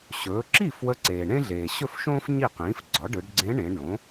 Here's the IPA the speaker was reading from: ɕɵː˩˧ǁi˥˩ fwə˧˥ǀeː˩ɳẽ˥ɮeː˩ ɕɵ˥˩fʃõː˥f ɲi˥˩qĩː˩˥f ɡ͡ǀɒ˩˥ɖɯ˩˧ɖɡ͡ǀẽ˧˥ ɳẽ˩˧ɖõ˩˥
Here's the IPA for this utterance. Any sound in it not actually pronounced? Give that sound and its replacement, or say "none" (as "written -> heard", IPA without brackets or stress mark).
none